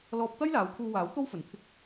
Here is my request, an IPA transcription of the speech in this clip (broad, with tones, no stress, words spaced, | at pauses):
lɔː˧p̚ t̪ɐ˥jlaː˨˧wkʰuː˧waː˨˥w t̪o˥wfɵ˨˧n t̪ʰɪ˥k̚